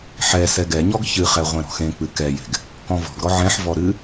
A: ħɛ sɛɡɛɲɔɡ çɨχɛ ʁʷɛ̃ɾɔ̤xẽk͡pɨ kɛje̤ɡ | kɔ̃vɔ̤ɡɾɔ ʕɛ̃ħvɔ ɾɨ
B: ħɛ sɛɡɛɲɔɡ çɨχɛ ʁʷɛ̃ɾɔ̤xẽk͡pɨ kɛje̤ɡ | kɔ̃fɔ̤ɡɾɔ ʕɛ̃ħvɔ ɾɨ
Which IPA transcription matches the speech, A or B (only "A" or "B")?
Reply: A